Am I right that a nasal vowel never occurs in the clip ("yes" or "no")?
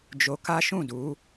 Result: no